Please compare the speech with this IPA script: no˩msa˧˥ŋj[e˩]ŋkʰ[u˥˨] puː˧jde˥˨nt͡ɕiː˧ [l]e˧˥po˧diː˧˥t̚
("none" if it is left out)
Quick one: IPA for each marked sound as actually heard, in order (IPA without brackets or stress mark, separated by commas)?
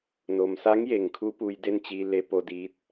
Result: e˩, u˧, l